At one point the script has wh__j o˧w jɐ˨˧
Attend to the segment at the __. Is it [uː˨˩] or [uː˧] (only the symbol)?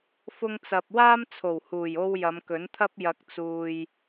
uː˨˩